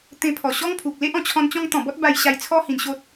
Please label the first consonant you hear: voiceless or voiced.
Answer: voiceless